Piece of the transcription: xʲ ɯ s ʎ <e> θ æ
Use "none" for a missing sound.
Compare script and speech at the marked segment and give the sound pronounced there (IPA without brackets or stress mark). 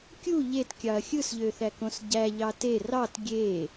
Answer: ø